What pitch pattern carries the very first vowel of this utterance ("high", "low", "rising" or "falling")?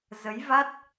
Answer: rising